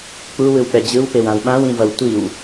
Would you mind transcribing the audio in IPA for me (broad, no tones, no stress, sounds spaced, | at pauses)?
k͡p u w ɯ w k͡p ɛ d͡ʑ ɯ w p e w ã w ɓ ã w ĩ v ʌ w tʷ i w